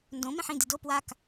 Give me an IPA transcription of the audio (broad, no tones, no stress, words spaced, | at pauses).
ndõ mẽħĩd ido pwak